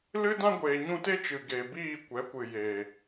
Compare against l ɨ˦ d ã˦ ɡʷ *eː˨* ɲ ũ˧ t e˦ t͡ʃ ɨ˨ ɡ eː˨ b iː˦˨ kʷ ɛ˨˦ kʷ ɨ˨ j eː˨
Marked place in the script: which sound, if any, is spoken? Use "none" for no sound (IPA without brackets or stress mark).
eː˨